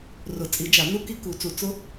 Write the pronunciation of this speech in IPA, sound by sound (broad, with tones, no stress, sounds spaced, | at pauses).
r ʊ˨˩˦ t͡sʼ i˨˩˦ d͡ʒ a˨˩˦ n u˦˥ k i˦˥ k u˨˩˦ t͡s u˨˩˦ t͡s ʊ˦˥